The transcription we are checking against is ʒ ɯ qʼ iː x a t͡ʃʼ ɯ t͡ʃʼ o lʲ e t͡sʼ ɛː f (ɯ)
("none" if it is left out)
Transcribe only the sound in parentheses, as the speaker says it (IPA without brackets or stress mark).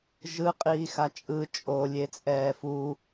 u